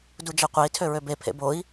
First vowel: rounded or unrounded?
rounded